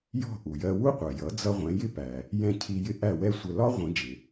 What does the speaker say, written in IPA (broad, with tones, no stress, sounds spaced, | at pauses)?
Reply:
j ɔ̤˥˩ ʔ u˩ j ɜ˧ w u˥ qʷ ɜ˩ j ʌ˩˥ d͡z ʌ˧ ʁʷ ɛ̃˩˥ j ɪ˥ p æ˩ | j ɛ̃˥˩ cʰ i˧ j ɪ˥ ʔ æ˥˩ w ɛ˥ sʷ ə˧ l ɒ˥ ʁʷ ĩ˩˥ d͡ʒ ɪ˩